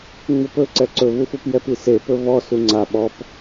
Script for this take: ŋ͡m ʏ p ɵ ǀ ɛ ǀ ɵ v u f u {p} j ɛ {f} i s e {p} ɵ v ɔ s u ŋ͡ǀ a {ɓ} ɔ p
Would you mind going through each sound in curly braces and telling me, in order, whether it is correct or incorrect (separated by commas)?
correct, incorrect, correct, correct